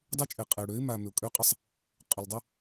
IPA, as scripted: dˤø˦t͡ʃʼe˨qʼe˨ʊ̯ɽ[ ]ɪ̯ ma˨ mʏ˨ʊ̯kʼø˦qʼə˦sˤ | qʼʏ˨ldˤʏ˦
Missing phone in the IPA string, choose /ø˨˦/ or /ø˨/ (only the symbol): ø˨˦